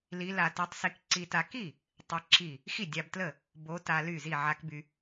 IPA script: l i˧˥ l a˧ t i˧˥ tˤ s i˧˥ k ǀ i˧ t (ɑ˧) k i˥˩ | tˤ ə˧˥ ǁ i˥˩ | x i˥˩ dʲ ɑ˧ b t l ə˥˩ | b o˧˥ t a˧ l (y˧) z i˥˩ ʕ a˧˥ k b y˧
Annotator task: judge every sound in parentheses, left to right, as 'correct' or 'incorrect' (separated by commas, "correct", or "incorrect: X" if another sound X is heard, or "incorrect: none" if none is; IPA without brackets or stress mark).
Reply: incorrect: a˧, incorrect: y˥˩